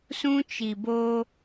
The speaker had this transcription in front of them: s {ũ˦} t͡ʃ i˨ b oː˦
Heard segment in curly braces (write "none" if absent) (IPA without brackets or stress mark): ũ˦